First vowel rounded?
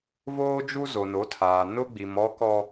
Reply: yes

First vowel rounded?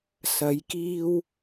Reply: no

